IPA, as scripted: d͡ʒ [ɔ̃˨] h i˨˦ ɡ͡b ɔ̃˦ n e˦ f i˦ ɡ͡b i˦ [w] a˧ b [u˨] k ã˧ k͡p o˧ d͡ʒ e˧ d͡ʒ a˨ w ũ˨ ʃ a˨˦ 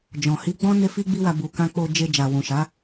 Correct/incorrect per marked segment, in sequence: correct, correct, correct

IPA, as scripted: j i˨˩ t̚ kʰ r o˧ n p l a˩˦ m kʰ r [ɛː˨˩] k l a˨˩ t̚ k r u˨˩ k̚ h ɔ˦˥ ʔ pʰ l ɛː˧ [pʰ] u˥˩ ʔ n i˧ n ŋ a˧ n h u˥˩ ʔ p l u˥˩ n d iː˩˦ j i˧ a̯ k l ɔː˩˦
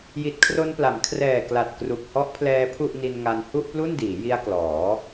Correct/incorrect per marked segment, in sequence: correct, correct

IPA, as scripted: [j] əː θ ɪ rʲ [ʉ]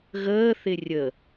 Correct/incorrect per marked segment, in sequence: incorrect: ɣ, incorrect: ə

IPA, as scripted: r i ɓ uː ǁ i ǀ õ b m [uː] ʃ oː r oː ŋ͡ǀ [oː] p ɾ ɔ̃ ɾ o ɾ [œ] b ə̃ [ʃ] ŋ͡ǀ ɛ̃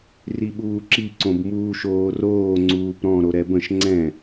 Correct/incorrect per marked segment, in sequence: correct, incorrect: uː, incorrect: ɛ, correct

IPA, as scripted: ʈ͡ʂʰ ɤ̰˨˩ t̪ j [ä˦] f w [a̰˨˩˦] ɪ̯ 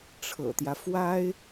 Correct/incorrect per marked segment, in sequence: correct, incorrect: a˥

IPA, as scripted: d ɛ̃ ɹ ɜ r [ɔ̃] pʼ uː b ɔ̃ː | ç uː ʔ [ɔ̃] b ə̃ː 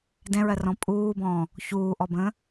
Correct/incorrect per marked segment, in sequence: correct, incorrect: ɔ

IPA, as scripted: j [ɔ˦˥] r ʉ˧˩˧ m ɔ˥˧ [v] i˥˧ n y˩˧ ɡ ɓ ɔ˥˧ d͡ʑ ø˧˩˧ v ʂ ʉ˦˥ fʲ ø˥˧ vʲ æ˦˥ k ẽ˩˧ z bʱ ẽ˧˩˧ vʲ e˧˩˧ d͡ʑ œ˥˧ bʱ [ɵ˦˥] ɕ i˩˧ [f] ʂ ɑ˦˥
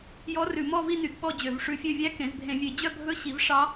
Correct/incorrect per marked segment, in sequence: correct, correct, correct, incorrect: v

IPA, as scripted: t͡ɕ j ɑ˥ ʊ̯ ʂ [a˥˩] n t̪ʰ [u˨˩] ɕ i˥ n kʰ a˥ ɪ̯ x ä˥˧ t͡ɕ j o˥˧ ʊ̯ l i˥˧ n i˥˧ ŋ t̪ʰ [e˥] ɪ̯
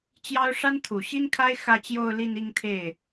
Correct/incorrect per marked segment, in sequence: incorrect: a˥, correct, incorrect: e˥˩

